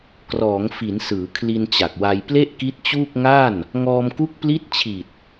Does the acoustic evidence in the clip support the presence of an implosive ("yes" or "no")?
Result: no